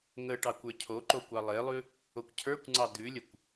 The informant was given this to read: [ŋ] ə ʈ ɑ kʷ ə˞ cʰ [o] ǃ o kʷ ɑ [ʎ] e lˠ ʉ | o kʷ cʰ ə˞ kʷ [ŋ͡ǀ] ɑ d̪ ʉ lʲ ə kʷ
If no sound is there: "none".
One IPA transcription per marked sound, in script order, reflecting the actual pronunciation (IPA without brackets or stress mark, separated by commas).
ŋ, o, lˠ, ŋ͡ǀ